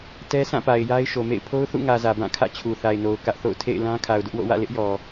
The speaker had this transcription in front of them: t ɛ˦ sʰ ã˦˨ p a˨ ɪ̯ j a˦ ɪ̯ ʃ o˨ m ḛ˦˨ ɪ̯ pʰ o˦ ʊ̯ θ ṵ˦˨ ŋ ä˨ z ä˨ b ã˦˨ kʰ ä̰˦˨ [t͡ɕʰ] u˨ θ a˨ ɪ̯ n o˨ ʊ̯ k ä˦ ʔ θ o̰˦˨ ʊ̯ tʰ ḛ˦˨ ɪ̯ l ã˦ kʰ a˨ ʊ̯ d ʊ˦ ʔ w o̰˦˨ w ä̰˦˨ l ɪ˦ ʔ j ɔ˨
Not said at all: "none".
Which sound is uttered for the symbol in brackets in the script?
t͡ɕʰ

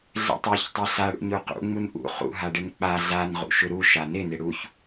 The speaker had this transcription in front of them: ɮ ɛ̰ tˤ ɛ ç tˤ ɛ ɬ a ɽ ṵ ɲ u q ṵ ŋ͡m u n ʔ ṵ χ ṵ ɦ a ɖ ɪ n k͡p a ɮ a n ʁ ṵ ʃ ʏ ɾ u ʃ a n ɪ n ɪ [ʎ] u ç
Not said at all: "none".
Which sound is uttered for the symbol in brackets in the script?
ɽ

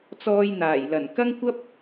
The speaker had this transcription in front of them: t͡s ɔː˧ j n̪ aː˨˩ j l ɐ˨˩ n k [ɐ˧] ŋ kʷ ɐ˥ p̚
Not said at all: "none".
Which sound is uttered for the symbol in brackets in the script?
ɐ˥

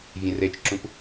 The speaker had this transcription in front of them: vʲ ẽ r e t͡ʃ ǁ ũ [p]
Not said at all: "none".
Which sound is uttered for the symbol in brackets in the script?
p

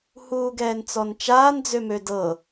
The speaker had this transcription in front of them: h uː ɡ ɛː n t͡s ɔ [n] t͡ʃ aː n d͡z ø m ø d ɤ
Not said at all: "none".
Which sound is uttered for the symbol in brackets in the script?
n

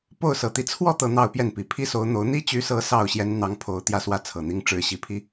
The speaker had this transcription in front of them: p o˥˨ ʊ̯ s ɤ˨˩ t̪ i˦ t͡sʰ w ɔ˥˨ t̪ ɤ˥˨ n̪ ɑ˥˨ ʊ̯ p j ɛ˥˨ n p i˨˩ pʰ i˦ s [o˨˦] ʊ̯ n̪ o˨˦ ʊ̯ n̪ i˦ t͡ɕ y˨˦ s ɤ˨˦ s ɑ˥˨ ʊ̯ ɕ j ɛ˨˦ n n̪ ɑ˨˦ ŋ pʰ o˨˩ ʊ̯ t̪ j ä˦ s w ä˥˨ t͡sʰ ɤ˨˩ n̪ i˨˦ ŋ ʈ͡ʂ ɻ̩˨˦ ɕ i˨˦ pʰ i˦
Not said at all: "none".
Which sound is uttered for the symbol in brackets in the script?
o˨˦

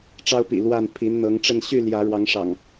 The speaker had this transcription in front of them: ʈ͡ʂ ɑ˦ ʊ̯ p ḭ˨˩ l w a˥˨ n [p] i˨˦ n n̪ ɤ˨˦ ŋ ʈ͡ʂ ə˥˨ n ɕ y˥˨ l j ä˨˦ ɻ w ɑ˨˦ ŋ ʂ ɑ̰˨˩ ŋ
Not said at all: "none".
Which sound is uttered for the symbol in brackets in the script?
pʰ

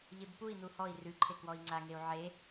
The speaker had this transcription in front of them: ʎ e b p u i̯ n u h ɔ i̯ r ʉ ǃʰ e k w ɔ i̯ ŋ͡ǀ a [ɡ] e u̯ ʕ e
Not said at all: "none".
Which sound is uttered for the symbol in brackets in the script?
ŋ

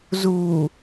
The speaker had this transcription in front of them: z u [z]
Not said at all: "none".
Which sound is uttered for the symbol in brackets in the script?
none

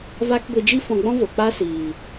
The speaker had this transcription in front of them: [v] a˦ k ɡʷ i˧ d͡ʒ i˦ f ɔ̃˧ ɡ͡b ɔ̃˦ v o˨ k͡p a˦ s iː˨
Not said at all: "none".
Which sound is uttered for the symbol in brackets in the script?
v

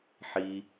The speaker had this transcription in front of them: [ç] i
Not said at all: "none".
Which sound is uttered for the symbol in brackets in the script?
ħ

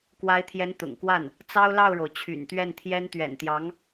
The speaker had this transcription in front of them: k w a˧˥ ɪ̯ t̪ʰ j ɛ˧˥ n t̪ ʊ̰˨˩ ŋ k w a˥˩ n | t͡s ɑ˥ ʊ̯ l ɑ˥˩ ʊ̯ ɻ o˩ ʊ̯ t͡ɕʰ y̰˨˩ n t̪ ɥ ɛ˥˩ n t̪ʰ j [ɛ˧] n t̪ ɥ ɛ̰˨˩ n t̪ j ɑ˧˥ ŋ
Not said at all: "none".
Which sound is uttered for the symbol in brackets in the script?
ɛ˥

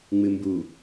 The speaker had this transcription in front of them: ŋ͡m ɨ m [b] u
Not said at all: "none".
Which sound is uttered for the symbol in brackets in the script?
b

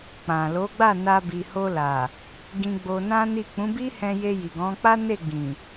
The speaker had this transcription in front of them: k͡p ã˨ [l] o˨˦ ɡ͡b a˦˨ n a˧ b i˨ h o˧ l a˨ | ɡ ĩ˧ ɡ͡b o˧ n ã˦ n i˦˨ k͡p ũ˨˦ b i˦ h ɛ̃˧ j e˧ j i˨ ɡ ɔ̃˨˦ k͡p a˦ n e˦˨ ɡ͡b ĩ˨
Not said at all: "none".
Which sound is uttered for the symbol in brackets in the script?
l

